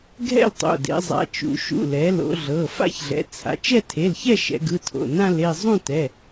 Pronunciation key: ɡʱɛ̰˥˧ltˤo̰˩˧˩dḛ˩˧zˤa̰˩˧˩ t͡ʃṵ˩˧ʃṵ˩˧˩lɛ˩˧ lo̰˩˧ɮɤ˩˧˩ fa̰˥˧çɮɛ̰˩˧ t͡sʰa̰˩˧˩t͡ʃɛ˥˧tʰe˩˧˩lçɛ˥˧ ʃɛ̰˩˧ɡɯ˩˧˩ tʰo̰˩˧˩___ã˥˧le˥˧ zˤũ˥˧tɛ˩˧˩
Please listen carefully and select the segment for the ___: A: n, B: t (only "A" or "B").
A